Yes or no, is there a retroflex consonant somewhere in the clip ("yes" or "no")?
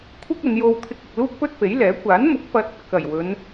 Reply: no